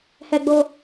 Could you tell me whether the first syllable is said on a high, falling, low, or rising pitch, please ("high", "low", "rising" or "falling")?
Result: high